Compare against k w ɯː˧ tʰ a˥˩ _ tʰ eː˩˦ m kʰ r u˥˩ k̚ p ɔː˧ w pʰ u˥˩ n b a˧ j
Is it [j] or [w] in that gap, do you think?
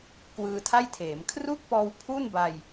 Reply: j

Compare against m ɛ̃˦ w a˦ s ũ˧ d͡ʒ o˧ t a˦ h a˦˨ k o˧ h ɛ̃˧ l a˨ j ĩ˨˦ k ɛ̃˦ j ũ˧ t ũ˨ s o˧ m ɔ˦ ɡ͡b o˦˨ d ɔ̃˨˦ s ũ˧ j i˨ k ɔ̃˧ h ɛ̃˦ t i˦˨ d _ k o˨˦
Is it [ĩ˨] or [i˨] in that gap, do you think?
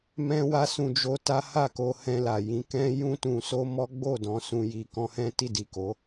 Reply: i˨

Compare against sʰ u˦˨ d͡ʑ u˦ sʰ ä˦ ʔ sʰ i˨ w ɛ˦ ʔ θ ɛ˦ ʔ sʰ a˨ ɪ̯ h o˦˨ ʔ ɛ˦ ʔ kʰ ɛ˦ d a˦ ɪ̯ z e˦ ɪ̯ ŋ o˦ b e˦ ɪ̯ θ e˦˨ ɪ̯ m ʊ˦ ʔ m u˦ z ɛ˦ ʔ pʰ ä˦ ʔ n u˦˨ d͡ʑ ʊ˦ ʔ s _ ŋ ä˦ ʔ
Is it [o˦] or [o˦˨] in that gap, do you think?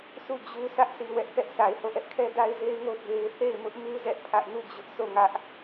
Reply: o˦˨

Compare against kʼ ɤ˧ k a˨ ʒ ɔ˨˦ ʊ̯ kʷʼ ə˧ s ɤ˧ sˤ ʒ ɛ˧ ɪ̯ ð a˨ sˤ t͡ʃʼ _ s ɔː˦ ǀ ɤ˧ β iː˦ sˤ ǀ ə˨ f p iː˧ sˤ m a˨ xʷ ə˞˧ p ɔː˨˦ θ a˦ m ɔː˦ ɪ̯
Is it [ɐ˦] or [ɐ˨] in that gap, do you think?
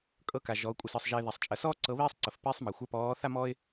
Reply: ɐ˨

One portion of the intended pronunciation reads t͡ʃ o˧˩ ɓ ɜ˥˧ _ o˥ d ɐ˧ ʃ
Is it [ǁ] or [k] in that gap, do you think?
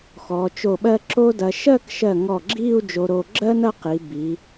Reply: ǁ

